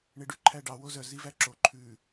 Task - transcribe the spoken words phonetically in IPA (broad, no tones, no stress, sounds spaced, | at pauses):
ɳ e ɖ ʉ ǃʰ æ ɖ ɑ w o z œ z i v æ ǁ o ǃʰ ʉ